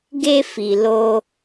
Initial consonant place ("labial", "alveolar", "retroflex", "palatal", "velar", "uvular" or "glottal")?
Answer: velar